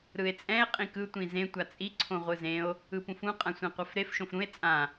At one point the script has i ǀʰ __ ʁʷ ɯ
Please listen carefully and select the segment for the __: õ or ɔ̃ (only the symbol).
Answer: õ